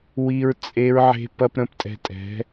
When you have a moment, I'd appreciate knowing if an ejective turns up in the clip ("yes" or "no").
yes